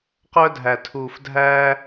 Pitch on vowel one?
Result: high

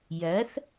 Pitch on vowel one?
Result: rising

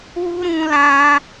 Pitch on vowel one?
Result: high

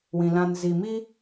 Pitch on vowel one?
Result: low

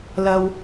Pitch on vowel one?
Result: low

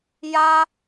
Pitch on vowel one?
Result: high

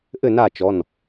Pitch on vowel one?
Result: falling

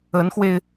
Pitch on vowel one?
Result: rising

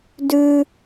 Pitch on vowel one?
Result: high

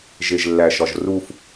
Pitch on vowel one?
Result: low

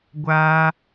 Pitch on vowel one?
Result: high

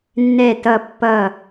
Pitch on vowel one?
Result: falling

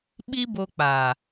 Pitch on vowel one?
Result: high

